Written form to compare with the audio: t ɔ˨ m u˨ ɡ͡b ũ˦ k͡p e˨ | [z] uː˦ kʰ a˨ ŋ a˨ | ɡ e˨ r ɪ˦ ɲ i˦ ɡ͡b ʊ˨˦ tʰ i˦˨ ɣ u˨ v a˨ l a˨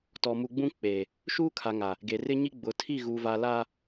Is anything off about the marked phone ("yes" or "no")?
yes